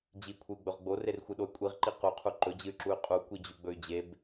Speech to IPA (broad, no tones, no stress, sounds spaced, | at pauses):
d͡ʑ i kʷʰ ɨ y̯ ɡ͡b ɵ ʁ ɡ͡b o r e r xʷ ɨ ɗ o y̯ kʷʼ i ʁ ǃ i q u qʰ u ǃ ɵ d͡ʑ ɨ y̯ ǁ u y̯ qʼ u kʷ i d͡ʑ ʉ ɡ͡b ɵ y̯ d͡ʑ e b